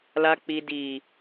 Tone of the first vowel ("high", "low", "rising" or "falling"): low